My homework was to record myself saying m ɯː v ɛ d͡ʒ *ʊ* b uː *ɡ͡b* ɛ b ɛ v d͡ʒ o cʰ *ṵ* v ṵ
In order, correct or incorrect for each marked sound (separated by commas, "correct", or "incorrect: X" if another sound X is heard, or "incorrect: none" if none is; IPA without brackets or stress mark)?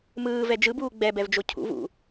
incorrect: ɯ, correct, correct